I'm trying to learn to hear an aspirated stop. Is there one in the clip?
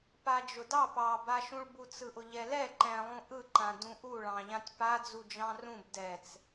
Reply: no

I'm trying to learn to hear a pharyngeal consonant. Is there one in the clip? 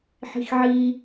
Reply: yes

